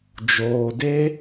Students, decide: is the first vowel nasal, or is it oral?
oral